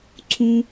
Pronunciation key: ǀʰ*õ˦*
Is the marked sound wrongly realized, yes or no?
yes